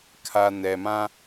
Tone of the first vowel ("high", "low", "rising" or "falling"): low